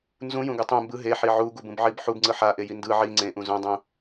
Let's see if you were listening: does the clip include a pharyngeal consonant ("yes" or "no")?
yes